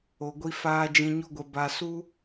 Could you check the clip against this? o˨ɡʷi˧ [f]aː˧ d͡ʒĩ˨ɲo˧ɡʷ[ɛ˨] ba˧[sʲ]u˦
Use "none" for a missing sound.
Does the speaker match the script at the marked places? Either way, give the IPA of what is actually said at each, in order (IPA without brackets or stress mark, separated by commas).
f, ɛ˨, s